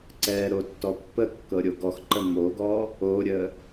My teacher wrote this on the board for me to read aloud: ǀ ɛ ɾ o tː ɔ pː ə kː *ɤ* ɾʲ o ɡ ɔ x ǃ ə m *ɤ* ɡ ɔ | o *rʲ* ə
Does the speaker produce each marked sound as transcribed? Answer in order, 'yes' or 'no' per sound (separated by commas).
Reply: yes, no, no